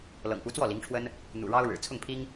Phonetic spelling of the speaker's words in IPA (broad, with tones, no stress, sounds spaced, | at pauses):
l ɤ̰˨˩ ŋ p u˧˥ t͡s w ɔ˥˩ l i˧˥ ŋ ʈ͡ʂʰ w ə˥ n | n̪ ṵ˨˩ ɻ ɑ˥ ʊ̯ ɻ ɻ̩˨˩ t͡sʰ ʊ˥˩ ŋ pʰ i˥ ŋ